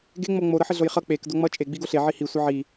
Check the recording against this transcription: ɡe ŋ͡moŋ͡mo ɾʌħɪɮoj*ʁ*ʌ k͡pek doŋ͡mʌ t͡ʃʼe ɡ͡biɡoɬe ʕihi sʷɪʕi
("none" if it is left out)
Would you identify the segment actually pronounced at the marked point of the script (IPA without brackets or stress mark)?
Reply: χ